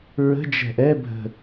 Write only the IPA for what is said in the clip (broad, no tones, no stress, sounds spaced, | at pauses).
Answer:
ɹ ə̤ d͡ʒ ɛ̤ ʔ ɛ bʱ ə̤